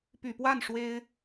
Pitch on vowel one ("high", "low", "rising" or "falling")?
low